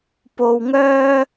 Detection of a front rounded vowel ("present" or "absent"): present